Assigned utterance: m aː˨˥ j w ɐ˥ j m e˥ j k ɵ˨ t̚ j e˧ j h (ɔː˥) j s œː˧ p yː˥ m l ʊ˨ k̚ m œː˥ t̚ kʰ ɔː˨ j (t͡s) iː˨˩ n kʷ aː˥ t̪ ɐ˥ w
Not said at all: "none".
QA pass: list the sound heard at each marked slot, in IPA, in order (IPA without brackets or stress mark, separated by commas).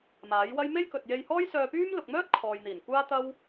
ɔː˥, n̪